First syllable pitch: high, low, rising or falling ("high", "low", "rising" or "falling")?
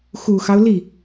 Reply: low